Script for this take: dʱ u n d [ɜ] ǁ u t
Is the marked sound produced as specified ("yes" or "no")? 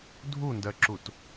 yes